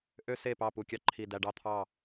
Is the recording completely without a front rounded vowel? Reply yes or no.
no